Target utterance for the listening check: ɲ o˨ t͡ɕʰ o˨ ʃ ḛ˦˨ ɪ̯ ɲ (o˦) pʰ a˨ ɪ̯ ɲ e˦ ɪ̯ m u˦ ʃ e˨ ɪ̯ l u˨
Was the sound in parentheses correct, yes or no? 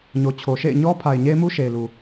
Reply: no